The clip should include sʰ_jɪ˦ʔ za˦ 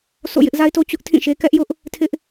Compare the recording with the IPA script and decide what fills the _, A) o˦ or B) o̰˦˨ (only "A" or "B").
B